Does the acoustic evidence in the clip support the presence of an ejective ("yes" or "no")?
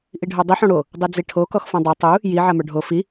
no